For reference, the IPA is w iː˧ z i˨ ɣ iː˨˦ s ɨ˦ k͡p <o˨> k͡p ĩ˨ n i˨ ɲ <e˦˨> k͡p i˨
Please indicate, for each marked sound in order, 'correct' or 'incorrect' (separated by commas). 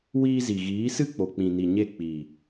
correct, correct